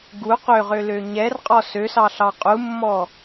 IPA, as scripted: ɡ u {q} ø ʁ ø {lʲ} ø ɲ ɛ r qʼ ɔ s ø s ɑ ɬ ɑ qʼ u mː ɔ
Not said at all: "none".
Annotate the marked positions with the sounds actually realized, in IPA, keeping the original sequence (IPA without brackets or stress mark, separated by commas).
q, l